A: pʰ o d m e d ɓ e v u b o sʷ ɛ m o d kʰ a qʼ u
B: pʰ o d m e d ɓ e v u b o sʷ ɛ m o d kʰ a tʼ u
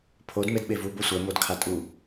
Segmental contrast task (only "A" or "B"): B